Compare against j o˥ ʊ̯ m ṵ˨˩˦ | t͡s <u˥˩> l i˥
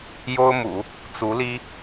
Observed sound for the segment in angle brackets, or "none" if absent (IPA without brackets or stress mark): u˧˥